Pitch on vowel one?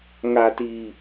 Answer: low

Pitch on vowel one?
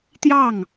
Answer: falling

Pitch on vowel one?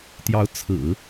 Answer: rising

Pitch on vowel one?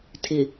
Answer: low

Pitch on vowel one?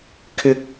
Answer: high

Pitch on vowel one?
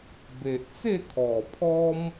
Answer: low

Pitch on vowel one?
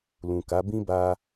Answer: low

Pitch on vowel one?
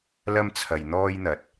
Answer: high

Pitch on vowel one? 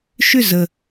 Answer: falling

